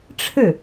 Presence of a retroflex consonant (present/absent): present